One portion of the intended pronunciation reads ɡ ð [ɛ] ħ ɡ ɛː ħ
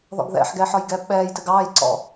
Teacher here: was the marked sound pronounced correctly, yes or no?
no